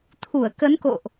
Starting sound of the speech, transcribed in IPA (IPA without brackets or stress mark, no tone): t̪ʰ